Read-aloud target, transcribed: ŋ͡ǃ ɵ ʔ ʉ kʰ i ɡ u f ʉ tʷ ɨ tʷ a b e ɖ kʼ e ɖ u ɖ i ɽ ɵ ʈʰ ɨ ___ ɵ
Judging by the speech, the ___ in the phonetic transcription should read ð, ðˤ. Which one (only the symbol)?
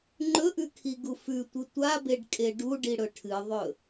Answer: ðˤ